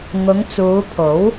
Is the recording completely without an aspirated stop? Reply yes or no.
no